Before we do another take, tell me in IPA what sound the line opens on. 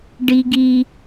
ɖ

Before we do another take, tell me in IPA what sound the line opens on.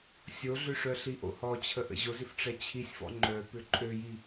sʲ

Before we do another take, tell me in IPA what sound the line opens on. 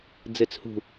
d͡z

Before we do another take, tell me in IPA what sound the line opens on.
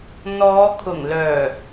n̪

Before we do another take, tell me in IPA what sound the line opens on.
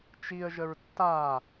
t͡ʃ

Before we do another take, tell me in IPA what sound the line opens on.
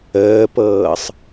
əː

